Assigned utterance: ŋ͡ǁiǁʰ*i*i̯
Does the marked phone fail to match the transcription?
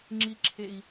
yes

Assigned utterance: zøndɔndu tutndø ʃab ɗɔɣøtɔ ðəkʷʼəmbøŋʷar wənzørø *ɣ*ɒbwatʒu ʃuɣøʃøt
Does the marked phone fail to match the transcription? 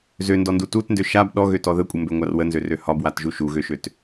yes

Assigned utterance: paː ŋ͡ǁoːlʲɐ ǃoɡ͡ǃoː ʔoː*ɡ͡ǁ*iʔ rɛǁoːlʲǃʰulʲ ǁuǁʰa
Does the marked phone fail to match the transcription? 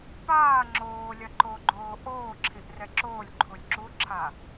yes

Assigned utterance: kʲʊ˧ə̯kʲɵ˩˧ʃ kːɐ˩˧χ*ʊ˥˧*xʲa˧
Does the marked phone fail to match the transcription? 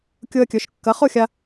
no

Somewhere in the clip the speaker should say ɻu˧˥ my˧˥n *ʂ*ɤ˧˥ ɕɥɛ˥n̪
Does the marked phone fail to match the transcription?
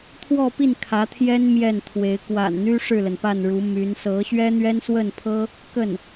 yes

